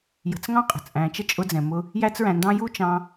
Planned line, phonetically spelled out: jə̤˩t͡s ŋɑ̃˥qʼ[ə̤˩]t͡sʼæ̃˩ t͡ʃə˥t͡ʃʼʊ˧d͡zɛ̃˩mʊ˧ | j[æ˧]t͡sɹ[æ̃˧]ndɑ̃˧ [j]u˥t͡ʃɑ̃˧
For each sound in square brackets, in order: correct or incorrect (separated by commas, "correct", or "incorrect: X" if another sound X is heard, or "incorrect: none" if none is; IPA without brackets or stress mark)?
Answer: correct, correct, incorrect: æ̃˩, correct